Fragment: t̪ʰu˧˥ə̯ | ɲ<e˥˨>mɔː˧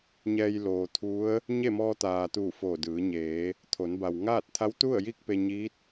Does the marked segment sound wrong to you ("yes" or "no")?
no